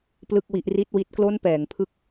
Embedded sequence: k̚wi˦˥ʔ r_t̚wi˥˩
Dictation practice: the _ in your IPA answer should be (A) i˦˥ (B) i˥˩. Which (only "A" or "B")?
B